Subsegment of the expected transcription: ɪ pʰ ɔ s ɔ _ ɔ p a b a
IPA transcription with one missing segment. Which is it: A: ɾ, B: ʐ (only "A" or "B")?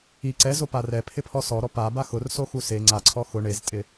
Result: A